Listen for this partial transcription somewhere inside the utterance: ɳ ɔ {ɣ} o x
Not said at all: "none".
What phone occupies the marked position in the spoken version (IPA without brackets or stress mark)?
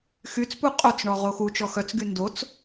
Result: ʁ